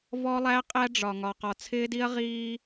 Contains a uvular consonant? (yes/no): yes